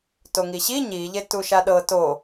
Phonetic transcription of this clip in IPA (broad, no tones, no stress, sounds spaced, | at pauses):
t o ŋ i ɕ i ɲ i ʎ e t u ʃ a ɗ ɤ t o